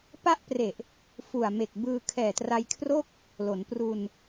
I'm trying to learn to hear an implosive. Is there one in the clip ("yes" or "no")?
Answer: no